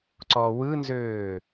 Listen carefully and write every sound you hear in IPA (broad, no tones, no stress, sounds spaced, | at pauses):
ǀ ɔ w ɯ n z øː